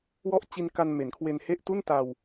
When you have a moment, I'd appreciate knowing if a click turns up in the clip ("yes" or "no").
no